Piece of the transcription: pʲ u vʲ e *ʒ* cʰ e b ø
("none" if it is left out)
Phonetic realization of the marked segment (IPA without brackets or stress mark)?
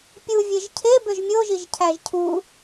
ʒ